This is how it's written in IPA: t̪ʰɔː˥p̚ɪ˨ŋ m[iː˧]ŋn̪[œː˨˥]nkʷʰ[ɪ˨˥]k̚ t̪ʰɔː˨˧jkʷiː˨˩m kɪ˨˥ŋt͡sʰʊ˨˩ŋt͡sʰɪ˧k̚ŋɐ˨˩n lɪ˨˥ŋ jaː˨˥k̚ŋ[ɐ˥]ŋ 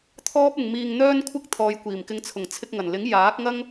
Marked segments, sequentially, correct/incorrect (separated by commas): correct, incorrect, incorrect, correct